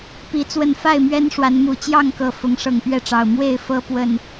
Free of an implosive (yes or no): yes